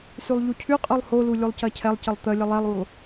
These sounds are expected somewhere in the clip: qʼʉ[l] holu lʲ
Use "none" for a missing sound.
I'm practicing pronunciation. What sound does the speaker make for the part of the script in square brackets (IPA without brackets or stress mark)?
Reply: lˠ